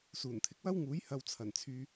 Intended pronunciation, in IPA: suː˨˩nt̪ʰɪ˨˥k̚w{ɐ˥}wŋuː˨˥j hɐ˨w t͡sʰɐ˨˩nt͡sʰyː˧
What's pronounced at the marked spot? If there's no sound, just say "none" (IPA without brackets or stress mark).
ɐ˥